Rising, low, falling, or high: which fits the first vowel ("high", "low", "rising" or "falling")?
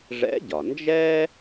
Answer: rising